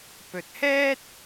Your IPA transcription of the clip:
p ɵ˨ t̚ h ɛː˥ t̚

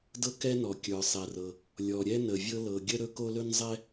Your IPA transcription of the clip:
d ɤ˥ k ɛ˥ n ɔ˩ kʲ ə˞˩ sˤ ɛ˩ r ɤ˩ | lʲ ɔ˩ ɾʲ ɛ˥ n ə˩ vʲ ɤ˥ l ɤ˩ ɡʲ ə˥ ɾ ɵ˥ k o˥ l ɵ˥ n zˤ ɛ˥

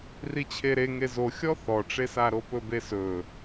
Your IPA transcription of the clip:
r i t͡ɕʰ e ɾ e ŋ e z o xʲ ɔ θ ɔ ʈ͡ʂ e s a ɾ o p ɵ b e s ɵ

